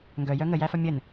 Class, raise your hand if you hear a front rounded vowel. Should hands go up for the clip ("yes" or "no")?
yes